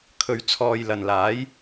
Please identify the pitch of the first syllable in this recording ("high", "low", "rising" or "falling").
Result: low